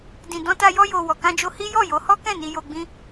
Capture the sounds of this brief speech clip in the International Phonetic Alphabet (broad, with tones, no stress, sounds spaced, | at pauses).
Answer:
d ĩ˨ d ɔ̃˧ t a˧ j ɔ˧ j o˨ w ɔ˨ k ã˧ d͡ʒ o˧ h i˦ j ɔ˦˨ j o˨˦ h ɔ˦ k ɛ̃˦˨ n i˧ j o˧ ɡ͡b ĩ˦